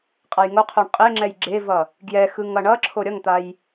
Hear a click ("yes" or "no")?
yes